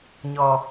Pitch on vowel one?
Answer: low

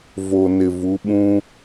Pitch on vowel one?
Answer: low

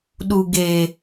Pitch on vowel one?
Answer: low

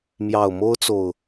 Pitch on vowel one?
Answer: low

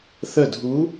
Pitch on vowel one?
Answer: falling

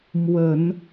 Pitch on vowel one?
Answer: low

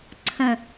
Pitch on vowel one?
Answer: falling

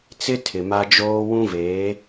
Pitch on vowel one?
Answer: high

